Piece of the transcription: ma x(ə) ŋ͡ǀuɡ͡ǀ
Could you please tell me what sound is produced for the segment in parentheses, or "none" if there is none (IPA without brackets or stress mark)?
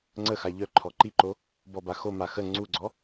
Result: ə